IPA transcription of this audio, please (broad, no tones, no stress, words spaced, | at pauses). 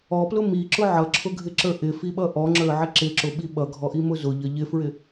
ɔplʊ miǁʊ ʕʌǁʰʊɡʱɪǁə˞ ʔɪfiɓʌ ʔɔŋ͡ǁə˞ʕɪ ǁɪǁʊɓi ɓʌɡʱɔʔimʊ zʊʎʌ ʎɪfɹɪ